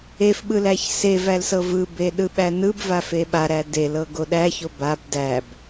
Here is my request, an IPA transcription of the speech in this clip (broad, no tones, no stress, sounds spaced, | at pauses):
e f ɓ ɯ l æ ç s e v æ l s ɤ v ɯ b e ɗ ɯ ɓ æ n ɯ b v a f e ɓ a ɾ æ d e l ɤ ɡ o ɗ æ ç o b a b d æ b